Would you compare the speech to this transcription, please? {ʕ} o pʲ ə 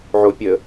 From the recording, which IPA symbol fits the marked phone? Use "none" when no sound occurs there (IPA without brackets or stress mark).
ʕ